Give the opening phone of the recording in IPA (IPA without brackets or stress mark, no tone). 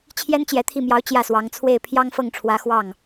t͡ɕʰ